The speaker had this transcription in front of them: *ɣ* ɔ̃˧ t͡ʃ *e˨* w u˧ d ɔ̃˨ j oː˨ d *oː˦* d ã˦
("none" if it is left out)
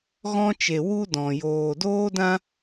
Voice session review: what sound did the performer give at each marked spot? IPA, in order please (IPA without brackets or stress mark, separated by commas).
ɣ, e˨, oː˦